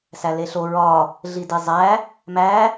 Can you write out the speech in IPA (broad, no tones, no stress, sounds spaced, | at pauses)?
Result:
s æ l e ɬ o ɹ ɒ | ɮ i d i zˤ æ | m æ